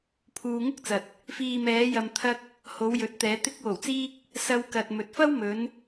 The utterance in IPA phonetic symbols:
pʰ uː˧ ŋ ʊ˥ k̚ t͡s ɐ˨ t̚ | f iː˨ m ɛː˨˧ j ɐ˨ m t̪ʰ ɐ˧ k̚ | h o˨˧ w j ɵ˨˥ t̚ t̪ ɛː˨˧ t̪ ɪ˧ k̚ w o˨˩ w t͡s iː˧ k̚ | s ɐ˧ w k ɐ˨ t̚ m ɵ˨ t̚ f ɐ˥ w m ɵ˨˧ n

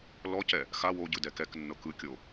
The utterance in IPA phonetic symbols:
l ɔ c ɛ | x a w o ɟ ɯ d ɛ k ɛ k nː ɤ k ɯ kʲ o

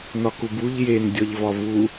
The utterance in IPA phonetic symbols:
n ɒ k u b u ʎ j e n dʲ ɒ ʎ v ɒ v u

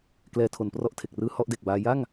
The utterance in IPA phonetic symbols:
k l ɛː˧ tʰ o˨˩ n p r ɔ˥˩ ʔ tʰ e˨˩ k̚ r ɯː˦˥ h ɔ˦˥ ʔ d e˨˩ k̚ b aː˧ j a˥˩ ŋ

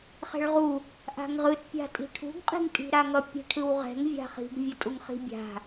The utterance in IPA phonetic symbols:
χ ɛ̤ ɭ ʁ u | ʔ a̤ ŋ ʁ ɯ t pʲ a̤ tʼ i̤ ʈʰ ṳ ɡ qʼ i̤ ŋ tʼ i̤ ɾ a ŋ ʌ pʲ e̤ ʈʰ ɯ w ʁ ɛ̤ ŋ vʲ a̤ χ i̤ ɡ vʲ ʌ tʼ u ŋ χ i̤ bʲ a̤

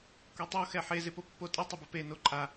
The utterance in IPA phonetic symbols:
kʷ ɛ tˤ o x ɛ ħ e z ɪ p o pː o tʼ ɪ tˤ ʊ b ɪ p e n o ǃʼ a

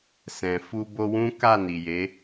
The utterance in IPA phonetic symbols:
s ɛ̃˨ f u˧ b o˧ w ũ˦ k a˦˨ n i˨ j e˨˦

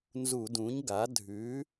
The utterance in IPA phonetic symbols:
n z u˧˩˧ d ũ˩˥ ɲ ɡ a˩˥ dʱ ʉ˩˥

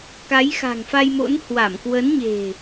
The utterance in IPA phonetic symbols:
k a˨˦ j x a̤˨˩ ŋ f a˧ j m o̰˧˥ n h w a˧˩ m k w ə˨˦ n ɲ e̤˨˩

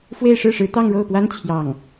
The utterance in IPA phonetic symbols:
f w e˥˧ ɪ̯ ʂ ɻ̩˥˩ ʂ ɻ̩˧˥ t̪ ɑ˥˧ ŋ ɻ o˥˩ ʊ̯ p w a˥ n t͡ɕʰ j ɑ˥˩ ŋ

